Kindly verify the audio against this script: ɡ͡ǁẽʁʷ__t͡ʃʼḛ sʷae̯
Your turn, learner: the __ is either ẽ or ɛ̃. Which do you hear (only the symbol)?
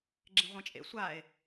ẽ